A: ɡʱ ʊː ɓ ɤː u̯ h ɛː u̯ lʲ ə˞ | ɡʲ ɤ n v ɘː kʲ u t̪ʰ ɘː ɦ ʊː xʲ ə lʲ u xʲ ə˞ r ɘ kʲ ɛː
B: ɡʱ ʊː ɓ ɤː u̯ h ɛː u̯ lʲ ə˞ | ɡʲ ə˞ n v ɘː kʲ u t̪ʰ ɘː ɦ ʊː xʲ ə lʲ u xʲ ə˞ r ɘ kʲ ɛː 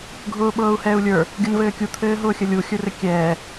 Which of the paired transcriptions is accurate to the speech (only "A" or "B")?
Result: A